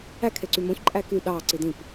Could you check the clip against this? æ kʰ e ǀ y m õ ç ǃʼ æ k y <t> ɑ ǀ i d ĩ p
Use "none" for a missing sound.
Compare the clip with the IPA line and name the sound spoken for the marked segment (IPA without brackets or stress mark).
ɗ